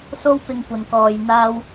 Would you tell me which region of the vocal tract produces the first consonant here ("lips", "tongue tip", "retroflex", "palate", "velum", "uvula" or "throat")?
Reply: tongue tip